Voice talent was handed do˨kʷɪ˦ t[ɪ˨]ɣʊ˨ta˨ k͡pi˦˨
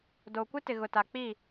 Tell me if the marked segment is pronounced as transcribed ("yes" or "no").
yes